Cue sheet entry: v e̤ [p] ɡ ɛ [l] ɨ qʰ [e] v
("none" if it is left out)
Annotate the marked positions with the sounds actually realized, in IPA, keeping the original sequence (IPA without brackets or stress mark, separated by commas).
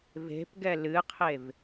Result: p, l, e